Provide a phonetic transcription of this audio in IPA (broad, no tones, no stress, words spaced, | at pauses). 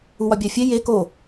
uwɒbʲæfʲe je ko